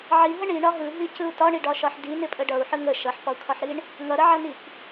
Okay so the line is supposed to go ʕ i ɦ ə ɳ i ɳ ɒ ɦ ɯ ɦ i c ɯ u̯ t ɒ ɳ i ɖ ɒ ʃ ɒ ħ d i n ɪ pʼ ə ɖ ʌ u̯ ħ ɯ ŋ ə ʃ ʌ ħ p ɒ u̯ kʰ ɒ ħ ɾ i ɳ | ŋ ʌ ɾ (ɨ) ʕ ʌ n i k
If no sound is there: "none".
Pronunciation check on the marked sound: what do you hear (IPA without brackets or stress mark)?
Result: ə